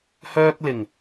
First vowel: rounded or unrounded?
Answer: rounded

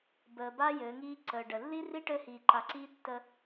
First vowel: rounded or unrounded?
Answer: unrounded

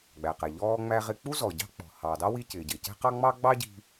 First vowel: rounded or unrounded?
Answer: unrounded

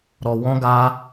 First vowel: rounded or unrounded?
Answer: rounded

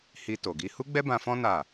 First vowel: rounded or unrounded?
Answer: unrounded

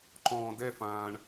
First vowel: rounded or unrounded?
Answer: rounded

